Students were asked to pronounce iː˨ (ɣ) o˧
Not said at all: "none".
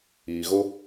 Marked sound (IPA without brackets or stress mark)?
ɣ